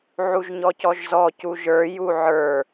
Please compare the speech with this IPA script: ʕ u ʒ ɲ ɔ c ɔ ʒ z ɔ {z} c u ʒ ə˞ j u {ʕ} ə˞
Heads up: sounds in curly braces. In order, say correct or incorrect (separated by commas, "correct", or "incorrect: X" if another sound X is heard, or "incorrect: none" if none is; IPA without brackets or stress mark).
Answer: incorrect: none, correct